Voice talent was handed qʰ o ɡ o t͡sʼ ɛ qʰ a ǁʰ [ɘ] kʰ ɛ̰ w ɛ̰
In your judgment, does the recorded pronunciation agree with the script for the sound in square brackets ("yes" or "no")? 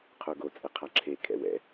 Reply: no